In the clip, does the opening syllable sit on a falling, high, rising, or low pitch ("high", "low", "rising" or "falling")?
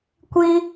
high